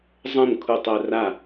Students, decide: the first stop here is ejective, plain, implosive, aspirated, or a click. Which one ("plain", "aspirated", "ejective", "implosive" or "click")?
aspirated